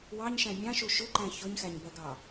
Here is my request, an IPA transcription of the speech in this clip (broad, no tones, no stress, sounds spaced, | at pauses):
w ɑ ɲ ʃ æ̃ mʲ ɑ̃ ʃ u ʃ ʊ ǃ æ̃ ç ʊ ɲ x æ ɲ b ɜ ɡ ɑ